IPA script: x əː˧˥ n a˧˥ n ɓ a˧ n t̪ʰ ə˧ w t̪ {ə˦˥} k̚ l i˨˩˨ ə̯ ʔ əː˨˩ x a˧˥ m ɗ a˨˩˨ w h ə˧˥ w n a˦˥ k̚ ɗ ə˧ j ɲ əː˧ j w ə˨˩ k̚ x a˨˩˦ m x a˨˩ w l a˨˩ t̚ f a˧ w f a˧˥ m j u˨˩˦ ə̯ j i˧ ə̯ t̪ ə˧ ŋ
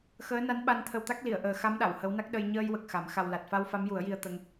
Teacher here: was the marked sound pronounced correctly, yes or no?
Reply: no